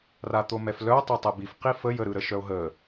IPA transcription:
r a t̪ o m ɛ f l œ o̯ tˤ ɤ tˤ ɛ b i f q i f ə j ə ɾ ɯ ɾ ə ʃ œ o̯ ɦ ə

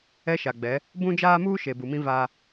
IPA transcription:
ɛ˦ ʃ a˨ ɡ͡b ɛ˨˦ | b ũ˦ d͡ʒ aː˦ m uː˦ ʃ e˨ b u˨ m ĩ˦ v a˦

